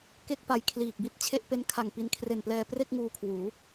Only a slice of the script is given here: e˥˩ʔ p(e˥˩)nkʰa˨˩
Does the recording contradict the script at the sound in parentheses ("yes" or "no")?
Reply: yes